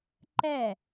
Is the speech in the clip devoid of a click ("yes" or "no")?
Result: no